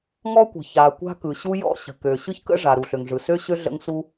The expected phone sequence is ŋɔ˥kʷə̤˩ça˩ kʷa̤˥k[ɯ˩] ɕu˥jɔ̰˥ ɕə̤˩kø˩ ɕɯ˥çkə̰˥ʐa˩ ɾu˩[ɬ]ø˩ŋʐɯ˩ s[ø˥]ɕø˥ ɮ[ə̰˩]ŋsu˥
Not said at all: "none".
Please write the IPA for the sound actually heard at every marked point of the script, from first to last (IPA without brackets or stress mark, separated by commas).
ɯ˩, ɬ, ø˥, ə̰˥